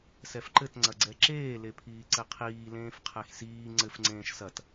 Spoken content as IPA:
sɛfǃɘtŋ͡ǀɐɡ͡ǀɛ ǁeːlepʰiː ǀɘqʰiː lẽːfqʰɛxsiː ŋ͡ǀɘfŋ͡ǀẽːʃ sɐt

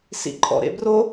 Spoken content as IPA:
sḭǃʼɔ̰ɾḛbro

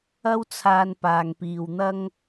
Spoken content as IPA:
ɐ˥wt͡sʰaː˧n paː˨ŋpiː˨wn̪ɐ˥ŋ

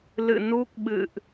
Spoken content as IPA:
lɨ̰˧˨nu˦˥k̚ɓɨ̰˧˨ʔ

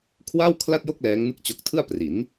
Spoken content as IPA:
kʰwaː˥˩wkʰla˥˩t̚jo˥˩k̚ lɛː˦˥ŋnɯ˥˩k̚t͡ɕo˦˥k̚ tʰɯ˥˩a̯pri˩˦n

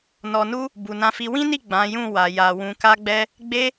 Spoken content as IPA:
nɔ˨nu˧ | bu˨nã˧fi˧ wĩ˦ni˦˨ ɡ͡bã˨˦jũ˦˨ wa˨ja˨ wũ˨ka˧ɡ͡bɛ˧ | ɡ͡be˧

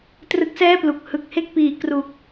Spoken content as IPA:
trɯ˦˥k̚sɛː˥˩plu˨˩k̚ hɯ˨˩k̚he˥˩k̚piː˨˩ kru˨˩k̚

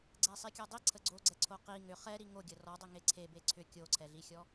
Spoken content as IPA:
ɡ͡ǀɛsˤikʲɔdˤi ǀʰəɡ͡ǀoɡ͡ǀɛǀʰo qi ŋʏ χɛ ɾiŋo ɡʲərɔ dˤʏŋeǀʰe beǀʰʏ kʲoǀʰɛɮixʲɔ

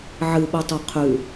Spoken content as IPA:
ʕɨɓutˤo qʰʉ

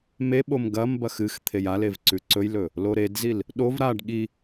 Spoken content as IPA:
meɓom ɡɐmbɐx ɨx t̪ʰejalev ǀʉǀɵjlɵ | loɾedzil | ɗov ɾaɖ ɠi

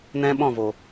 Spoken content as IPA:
nɛ̃˦ɓɔ̃˦˨vo˨

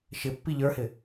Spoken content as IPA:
ʃɪ pːiʎə˞hɪ

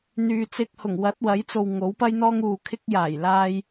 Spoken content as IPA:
n̪yː˨t͡sɪ˧k̚hʊ˨˩ŋ wɐ˨˥t̚wɐ˨˥jt͡so˨w ŋo˨˥wpɐ˥jn̪ɔː˥ŋ uː˨ kʰɪ˧k̚jaː˨˩j laː˧j

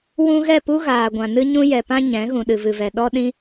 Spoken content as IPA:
wũ˦ ɣɛ˦˨pu˦ɣaː˨ɡʷã˨ nɨ˦ɲũ˦jɛ˨pã˦ ɲɛ̃˨˦ ɣũ˨ɗɨ˨vɨ˨vɛ˨ ɗɔ˦ɗĩ˦

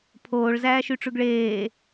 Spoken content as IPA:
pʰoːɭ zæːʃyʈ͡ʂʉɡɭeː

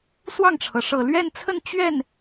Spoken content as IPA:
swɑ˥˩ŋʈ͡ʂʰɤ˩ ʂɤ˨˩lɥɛ˥˧nt͡sʰə˥˧n t͡ɕɥɛ˥˩n

